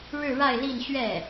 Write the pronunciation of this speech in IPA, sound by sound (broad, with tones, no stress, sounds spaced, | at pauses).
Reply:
ɻ ɻ̩˥˧ ɻ a˥˧ ɪ̯ l i˥˧ n ɕ ɥ ɛ˥˩